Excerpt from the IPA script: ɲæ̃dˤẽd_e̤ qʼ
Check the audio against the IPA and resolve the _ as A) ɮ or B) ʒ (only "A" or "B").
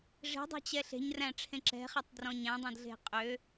A